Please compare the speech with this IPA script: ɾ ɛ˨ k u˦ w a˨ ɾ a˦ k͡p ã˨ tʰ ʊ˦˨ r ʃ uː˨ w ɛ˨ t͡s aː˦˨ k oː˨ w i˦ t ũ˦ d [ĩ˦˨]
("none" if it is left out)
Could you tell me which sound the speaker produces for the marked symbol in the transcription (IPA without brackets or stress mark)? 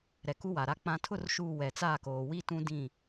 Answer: ĩ˦˨